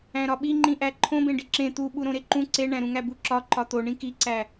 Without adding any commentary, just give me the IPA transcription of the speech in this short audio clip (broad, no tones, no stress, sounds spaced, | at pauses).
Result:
æ̃ ɾ ɒ ɓ i ŋ͡ǃ ĩ ʔ æ ǃʰ õ b ẽ ɖ i ǁ ẽ t̪ u ɓ u ɾ õ ɾ e ǃ ũ ǀ e ɳ æ̃ ɾ ũ ŋ æ b u ǁ ɒ ǃ ɒ t̪ o ɳ ĩ k i ǀ æ